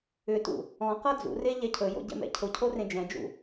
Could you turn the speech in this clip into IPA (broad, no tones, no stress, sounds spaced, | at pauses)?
ʏ t ṵ | ɔ̃ q ɤ d͡z ṵ r e ʎ ɛ cʰ ɵ j o̰ ɟ ɛ̰ m ɛ̰ cʰ ʊ cʰ o r ẽ d͡ʒ ɛ̃ d͡ʒ ṵ